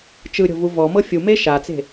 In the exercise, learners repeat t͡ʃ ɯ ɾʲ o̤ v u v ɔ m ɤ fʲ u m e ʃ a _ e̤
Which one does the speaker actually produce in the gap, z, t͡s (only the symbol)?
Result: t͡s